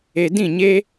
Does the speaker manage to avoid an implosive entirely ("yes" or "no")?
yes